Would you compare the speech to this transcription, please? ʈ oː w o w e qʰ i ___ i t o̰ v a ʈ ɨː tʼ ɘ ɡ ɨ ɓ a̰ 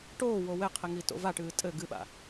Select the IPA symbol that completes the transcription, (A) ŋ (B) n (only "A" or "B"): A